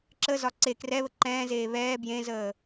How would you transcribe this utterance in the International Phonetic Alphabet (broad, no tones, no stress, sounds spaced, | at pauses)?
ǁ ə z ɒ ǀ e k r ɛ β ə ǃ ɛ̃ː z eː β ɛː b j ẽ z əː